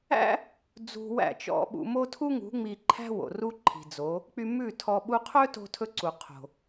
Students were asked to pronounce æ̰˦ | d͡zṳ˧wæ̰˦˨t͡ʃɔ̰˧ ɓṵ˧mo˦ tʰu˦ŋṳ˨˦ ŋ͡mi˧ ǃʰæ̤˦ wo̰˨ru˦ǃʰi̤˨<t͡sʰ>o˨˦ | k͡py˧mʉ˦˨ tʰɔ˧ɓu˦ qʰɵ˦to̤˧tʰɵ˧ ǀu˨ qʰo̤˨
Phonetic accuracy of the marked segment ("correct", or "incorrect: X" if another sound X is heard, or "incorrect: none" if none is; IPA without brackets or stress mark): incorrect: d͡z